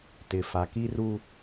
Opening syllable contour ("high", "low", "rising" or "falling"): low